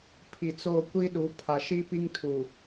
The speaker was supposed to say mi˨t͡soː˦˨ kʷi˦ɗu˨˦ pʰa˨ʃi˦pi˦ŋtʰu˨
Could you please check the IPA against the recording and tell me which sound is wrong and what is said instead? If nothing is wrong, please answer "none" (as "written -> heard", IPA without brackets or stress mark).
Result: m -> pʰ